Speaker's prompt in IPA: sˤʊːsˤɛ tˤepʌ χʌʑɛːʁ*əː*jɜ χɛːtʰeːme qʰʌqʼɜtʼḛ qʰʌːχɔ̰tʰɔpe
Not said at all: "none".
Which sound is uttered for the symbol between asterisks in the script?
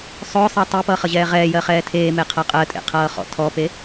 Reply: ɛː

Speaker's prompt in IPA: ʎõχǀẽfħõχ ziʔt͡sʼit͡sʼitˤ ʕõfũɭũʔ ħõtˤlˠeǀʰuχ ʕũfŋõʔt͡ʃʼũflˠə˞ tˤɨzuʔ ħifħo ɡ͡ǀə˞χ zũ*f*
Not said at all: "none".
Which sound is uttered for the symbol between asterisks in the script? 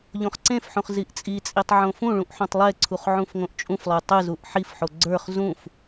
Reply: f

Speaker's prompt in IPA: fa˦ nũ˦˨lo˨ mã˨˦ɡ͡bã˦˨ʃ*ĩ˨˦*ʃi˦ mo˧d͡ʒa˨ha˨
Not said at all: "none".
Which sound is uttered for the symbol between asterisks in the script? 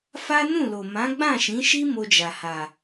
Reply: ĩ˨˦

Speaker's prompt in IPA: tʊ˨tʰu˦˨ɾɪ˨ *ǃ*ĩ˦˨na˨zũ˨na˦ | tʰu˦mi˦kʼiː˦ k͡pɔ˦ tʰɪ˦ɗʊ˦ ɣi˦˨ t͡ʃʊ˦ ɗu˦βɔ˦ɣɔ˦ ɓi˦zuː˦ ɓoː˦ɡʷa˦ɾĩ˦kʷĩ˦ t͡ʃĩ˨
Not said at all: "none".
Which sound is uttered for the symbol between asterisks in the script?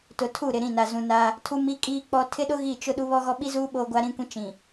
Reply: ɾ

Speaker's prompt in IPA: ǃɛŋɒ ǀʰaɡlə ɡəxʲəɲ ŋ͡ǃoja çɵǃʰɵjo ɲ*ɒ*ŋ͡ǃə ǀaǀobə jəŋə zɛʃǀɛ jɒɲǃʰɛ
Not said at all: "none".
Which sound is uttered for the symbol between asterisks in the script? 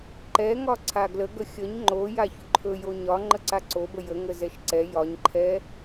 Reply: ɒ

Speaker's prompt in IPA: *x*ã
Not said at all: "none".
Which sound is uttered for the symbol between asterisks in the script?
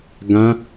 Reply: ɡ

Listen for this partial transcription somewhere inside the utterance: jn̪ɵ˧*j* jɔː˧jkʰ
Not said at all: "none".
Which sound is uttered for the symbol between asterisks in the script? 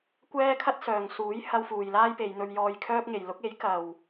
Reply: ɥ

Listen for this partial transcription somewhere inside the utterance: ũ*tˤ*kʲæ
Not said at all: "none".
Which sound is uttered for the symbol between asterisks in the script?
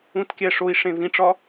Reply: t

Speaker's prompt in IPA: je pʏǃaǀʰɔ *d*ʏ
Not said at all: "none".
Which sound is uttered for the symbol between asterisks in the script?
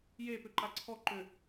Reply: ǃ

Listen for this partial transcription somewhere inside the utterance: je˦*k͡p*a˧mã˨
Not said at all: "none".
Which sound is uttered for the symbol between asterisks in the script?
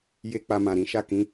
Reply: k͡p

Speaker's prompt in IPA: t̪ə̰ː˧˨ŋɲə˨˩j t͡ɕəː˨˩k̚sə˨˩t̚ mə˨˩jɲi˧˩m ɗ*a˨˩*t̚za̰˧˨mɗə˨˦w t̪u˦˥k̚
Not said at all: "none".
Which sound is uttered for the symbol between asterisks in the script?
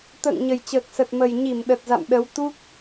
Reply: ə˨˩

